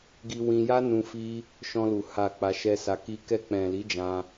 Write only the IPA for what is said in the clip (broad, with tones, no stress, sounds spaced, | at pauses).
ɡ i˧ w ĩ˧ j a˦ n ũ˧ f i˧ | ʃ ɔ̃˧ l u˨ h a˨ k͡p a˧ ʃ ɛ˦ s a˧ k i˦ k ɛ˧ k͡p ɛ̃˨ l i˨˦ d͡ʒ ã˧